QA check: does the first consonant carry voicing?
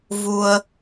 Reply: yes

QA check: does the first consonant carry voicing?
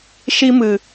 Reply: no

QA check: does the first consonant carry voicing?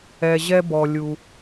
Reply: yes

